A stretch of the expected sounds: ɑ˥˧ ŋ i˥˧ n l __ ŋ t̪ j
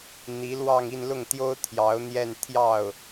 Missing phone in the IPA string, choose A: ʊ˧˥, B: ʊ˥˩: B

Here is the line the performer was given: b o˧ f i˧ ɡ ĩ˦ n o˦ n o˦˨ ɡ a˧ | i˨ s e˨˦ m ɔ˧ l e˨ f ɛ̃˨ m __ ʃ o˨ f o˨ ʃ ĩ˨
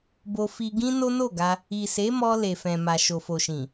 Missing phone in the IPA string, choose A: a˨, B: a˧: A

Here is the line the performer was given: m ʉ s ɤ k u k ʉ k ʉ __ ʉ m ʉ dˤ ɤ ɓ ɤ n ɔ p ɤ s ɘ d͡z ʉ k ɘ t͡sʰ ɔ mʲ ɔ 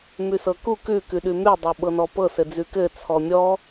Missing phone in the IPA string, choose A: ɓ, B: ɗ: B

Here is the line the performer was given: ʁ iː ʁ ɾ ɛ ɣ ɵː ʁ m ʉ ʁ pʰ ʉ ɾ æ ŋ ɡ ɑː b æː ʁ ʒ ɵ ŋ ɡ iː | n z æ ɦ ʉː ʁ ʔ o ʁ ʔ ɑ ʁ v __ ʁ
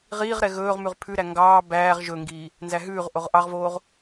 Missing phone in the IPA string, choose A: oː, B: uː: A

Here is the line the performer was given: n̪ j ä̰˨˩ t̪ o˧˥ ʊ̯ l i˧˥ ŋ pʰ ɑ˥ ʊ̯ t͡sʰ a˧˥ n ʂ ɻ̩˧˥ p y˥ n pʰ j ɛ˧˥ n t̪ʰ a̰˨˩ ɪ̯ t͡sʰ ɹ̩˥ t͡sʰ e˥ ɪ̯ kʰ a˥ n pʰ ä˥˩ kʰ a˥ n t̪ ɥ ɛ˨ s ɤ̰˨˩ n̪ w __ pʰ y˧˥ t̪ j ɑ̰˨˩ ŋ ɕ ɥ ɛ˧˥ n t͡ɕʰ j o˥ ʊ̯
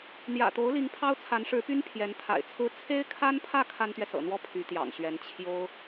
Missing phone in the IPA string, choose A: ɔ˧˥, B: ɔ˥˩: B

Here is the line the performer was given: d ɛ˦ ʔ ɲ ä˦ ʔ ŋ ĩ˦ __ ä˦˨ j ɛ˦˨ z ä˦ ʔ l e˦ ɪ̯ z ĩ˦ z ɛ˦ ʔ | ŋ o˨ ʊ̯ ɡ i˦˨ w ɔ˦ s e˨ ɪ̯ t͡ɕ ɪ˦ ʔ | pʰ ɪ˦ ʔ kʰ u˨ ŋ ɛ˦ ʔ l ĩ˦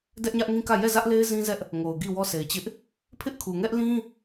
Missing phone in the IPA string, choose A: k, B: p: A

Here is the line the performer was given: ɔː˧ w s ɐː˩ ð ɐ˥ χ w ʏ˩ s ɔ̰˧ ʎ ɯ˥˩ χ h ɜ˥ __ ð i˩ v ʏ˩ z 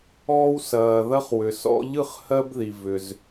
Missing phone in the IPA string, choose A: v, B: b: B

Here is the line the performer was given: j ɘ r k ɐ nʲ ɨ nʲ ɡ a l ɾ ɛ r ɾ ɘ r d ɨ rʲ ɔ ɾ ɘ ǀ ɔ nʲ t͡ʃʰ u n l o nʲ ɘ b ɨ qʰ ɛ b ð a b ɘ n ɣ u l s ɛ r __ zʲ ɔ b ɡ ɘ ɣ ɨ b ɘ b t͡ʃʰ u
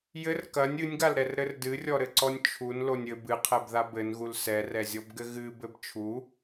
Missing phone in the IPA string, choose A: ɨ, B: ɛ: B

